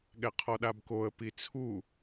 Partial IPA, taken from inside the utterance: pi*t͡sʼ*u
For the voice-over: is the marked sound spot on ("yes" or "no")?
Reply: no